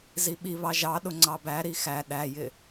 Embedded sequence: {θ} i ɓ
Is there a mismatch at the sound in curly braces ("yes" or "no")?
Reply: yes